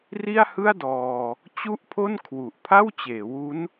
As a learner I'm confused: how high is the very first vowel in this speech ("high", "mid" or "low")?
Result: high